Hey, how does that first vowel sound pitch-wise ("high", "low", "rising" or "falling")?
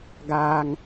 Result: high